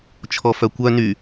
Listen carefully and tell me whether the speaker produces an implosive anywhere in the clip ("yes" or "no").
no